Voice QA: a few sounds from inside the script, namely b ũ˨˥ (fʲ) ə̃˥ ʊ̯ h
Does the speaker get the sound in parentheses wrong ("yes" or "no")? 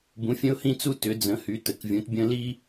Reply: no